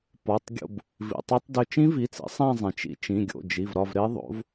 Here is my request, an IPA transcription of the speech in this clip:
p ɒ˩˧˩ tˤ ɡʲ o̰˦˨ b | v ḭ˩ tˤ e˦˥ tˤ d ʏ˦˨ t͡ʃ ĩ˦˥ v i˩˧˩ t͡s ḭ˩˥ sˤ æ̃˦˨ zˤ ẽ˩ t͡ʃ ḭ˩˥ t͡ʃ ĩ˩˧˩ ɡʲ o̰˩˧˩ d͡ʒ i˩˧˩ v ɾ ɒ˦˨ v ɾ e˦˥ ðˤ o̰˩˥ v

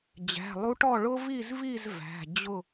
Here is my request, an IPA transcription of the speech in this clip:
d͡ʑ æ̤˩˧˩ lˠ u˧˥ ʈ ɔ˥˨ ɭ ʊ˥ v i˥˨ z v i˥˨ z v æ̤˩˧˩ d͡ʑ ʊ˥˨

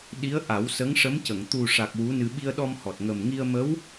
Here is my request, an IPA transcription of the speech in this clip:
ɗ i˧˥ ə̯ ʔ a˨˩˦ w s ə˧˥ ŋ ʂ ə˧˥ m c ə˨˩˨ ŋ t̪ u˨˩ ʂ a˨˩ k̚ w u˧˥ n ɨ˧ ɓ i˧ ə̯ ɗ ɔ˧ m h ɔ˨˩ t̚ ŋ ə˨˩ m ŋ i˧ ə̯ m ə˧˥ w

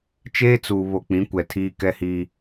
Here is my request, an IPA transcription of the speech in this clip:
t͡ʃ eː˦ t͡s uː˨ β o˨ k͡p ĩ˨˦ kʷ ɛ˨ tʰ iː˦ k ɛ˦ h iː˦

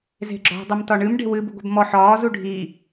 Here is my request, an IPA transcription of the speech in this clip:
z e̤ ɡ͡ǁ ɔ̤ dˤ ə m t ɒ ɳ ɨ m ɖ e̤ w ɨ b u ɡʷ e̤ b m ɔ ħ ɒː z u ɖʱ i

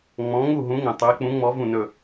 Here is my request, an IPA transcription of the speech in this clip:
ŋ͡m ɔ̃˨˦ ŋ u˥˨ ɦ ũ˨˦ ŋ ə̃˩ tˤ ɵ˨˦ e̯ k͡p ũ˨˦ ŋ͡m ɔ˨˦ v ũ˧˩ n ɵ˧˩

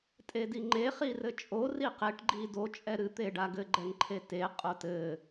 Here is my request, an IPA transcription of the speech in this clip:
tʼ e d i ŋ͡ǃ e χ i r ɘ t͡ʃʼ o r i q e ʈ ɡ͡ǃ i d o t͡ʃʼ ɛ ɾ ɨ t̪ e ɖ a ɡ ɘ ɡ͡ǃ ɛ ŋ ǃʰ e t e qʼ o t ɘ

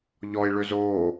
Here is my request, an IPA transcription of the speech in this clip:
ʎ ɔ i̯ ɭ ø z oː

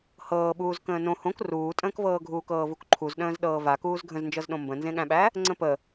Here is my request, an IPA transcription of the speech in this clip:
h ɤː ɓ uː z k ə̃ː n õ h õ k r uː tʼ ə̃ː k v ɤː ɡʱ uː k ɤː v u k ǃʰ u z ɗ ə̃ː z ɗ ɤː v a k uː z ɡʱ ə̃ z n d͡ʒ ɤ z ɗ õ m b ə̃ n z ẽ ɠ æ̃ ɓ æ | ŋ͡ǀ ə̃ p ə

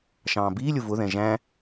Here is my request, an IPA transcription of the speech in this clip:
ʃ ɑ̃ː b iː lʲ ʊ v ʊ ð ɛ̃ ʒ æ̃

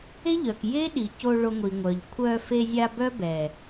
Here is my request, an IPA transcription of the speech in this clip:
e˦ ʎ œ˨ k j e˦ ɗ i˨ c o˧ ɭ o˧ ŋʷ i˨ ŋʷ œ˨ ʎ kʷʰ œ˧ f e˧ zʲ a˧ b œ˦ b ɛ˨

